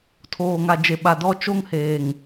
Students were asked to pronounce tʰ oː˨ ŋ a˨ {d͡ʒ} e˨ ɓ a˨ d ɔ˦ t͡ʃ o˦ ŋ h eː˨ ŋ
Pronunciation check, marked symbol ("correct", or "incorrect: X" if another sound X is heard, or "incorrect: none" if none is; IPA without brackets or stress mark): correct